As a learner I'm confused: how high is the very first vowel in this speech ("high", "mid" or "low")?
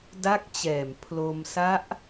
low